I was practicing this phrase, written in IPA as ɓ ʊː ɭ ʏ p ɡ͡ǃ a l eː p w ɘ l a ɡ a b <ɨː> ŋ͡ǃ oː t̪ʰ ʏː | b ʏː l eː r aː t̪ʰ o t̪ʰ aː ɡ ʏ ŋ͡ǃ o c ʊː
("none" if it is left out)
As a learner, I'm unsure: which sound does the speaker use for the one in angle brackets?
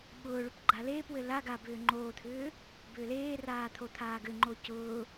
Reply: ʏː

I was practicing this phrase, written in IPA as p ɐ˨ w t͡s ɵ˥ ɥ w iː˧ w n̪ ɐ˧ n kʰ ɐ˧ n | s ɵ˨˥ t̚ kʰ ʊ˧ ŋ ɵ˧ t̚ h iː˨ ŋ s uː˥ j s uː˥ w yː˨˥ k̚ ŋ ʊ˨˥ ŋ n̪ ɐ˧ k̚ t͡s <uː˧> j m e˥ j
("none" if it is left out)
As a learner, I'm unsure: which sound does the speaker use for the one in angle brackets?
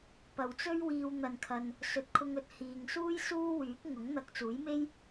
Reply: uː˨˥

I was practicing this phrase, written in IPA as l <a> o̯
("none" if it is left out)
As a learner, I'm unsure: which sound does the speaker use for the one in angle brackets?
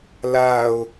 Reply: a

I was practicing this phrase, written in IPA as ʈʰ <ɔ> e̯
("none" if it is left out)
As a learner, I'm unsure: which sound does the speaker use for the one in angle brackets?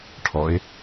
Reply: ɔ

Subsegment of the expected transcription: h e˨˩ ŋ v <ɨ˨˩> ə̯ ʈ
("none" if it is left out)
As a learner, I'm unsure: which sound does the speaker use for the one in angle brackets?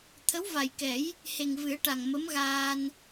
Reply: ɨ˨˩˦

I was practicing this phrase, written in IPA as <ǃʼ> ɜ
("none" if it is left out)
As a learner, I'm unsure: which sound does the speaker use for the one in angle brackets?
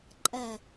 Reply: ǃʼ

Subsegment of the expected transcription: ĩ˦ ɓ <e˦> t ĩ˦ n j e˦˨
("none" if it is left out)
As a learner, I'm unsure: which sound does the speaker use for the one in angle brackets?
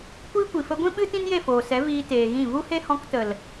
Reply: ɨ˦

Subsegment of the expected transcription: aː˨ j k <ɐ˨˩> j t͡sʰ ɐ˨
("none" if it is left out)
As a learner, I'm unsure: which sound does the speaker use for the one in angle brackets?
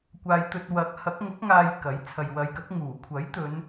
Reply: ɐ˨˥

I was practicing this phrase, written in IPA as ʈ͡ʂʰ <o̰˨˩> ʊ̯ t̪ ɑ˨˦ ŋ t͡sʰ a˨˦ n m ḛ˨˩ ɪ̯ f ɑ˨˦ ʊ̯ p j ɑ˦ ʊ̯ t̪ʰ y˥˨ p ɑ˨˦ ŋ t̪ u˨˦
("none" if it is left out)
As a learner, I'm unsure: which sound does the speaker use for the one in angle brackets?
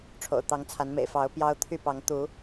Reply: o̰˨˩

